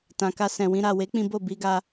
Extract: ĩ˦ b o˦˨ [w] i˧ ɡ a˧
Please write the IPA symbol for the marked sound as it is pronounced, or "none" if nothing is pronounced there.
b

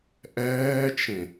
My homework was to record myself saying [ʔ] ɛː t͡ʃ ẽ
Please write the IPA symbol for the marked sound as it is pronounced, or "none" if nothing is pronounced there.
ʔ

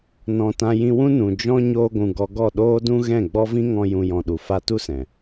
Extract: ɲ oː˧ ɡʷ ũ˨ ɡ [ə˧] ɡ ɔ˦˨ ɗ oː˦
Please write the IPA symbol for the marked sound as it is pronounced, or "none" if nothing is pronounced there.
ɔ˧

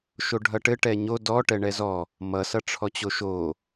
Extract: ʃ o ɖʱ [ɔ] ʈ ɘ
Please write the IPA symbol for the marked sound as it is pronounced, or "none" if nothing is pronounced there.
ʌ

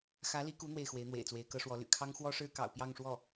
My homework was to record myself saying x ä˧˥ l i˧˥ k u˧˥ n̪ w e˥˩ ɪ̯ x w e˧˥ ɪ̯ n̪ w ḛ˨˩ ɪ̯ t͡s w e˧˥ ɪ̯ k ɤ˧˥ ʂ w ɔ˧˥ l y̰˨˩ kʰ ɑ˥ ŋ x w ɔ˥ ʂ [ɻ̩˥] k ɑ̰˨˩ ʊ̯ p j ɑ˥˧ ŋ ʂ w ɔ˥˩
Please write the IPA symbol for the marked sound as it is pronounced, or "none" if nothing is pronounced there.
ɻ̩˥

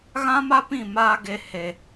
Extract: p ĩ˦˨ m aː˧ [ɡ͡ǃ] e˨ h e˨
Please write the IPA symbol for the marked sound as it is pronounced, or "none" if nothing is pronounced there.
ɡ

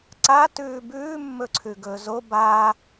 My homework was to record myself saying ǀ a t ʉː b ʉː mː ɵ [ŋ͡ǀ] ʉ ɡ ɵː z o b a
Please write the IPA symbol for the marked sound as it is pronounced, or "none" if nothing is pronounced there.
ǀʰ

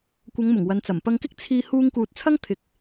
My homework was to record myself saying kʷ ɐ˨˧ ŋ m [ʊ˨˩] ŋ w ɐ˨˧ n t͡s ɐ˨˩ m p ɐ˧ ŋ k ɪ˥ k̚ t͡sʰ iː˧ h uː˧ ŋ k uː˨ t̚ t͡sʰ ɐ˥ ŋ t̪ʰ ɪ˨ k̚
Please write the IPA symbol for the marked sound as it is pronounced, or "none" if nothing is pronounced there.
ʊ˨˩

